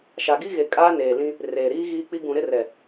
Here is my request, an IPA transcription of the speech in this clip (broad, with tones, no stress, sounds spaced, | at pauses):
ʃ a˨ ɡ i˦ ɣ e˨ kʼ aː˦ n eː˨ l ĩ˦ | r eː˨ ɾ iː˦ ɣ iː˦ k͡p i˦ ɡ ũ˨ ɾ ɪ˦ r ɛ˨